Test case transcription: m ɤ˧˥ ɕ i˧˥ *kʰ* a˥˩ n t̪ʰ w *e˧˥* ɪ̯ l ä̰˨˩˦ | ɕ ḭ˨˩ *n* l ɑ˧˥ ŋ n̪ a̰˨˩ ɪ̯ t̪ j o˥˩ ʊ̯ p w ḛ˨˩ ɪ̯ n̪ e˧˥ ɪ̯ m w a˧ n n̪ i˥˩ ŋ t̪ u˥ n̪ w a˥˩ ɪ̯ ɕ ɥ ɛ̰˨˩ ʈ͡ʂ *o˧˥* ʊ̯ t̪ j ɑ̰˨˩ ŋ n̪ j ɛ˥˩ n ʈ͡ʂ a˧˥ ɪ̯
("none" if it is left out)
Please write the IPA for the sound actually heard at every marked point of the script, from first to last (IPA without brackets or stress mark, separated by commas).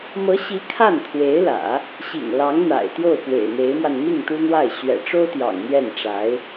kʰ, e˧˥, ŋ, o˥